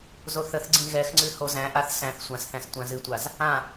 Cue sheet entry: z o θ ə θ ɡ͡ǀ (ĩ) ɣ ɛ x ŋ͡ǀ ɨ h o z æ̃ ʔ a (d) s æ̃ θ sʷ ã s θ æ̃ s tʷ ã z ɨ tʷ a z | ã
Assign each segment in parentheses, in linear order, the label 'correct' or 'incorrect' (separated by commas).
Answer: correct, incorrect